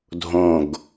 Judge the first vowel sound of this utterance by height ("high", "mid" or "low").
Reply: mid